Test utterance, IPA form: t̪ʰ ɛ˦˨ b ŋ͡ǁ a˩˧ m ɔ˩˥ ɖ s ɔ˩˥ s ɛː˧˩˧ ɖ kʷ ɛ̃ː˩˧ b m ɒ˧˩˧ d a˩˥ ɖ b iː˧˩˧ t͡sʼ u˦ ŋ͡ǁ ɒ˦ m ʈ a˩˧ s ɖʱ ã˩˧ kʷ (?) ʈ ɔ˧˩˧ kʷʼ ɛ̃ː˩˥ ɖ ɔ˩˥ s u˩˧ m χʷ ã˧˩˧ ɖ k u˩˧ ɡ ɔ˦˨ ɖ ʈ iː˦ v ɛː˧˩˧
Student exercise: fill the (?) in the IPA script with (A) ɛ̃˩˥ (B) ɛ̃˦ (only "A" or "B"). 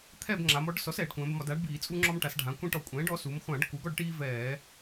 B